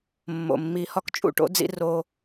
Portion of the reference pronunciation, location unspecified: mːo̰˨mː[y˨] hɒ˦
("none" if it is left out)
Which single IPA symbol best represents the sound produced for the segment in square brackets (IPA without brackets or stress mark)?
i˨